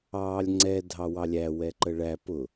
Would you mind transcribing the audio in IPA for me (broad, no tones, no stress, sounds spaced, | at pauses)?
ɑː lʲ ŋ͡ǀ ɛ dʱ ɑ w ɑ lʲ æ w ɛ ǃ ə ɭ æ p ʊ